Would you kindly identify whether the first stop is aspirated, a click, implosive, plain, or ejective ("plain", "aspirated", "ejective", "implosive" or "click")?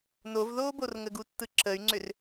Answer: plain